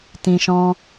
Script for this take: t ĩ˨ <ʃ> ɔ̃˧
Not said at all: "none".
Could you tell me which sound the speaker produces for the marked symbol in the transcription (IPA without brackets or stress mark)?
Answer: ʃ